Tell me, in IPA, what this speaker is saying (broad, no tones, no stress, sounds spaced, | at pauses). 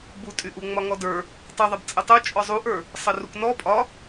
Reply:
b u tʼ y ʔ u ŋ͡m ɒ ŋ ɔ d ə˞ | tˤ u ðˤ a b t͡sʼ ə tˤ u t͡ʃʼ ɔ zˤ u ʔ ə˞ | sˤ ə r u k n ɔ pʼ ɒ